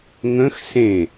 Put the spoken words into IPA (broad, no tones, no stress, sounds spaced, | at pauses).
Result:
ŋ ə̃ x s ẽ